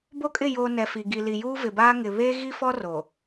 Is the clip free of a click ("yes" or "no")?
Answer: yes